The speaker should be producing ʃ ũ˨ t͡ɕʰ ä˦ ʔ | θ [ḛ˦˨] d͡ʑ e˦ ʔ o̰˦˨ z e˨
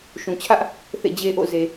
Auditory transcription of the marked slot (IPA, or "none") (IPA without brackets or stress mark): ḛ˦˨